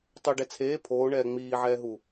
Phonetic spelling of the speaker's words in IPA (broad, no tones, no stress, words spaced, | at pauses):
tˤoɖɛ t͡sʰeː pʰoːɳɛː ŋ͡miːʕɛːɦu